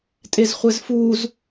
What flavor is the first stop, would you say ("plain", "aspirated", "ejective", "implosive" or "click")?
ejective